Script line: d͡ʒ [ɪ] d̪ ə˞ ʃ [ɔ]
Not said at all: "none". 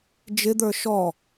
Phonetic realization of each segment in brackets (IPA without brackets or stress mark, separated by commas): ɪ, ɔ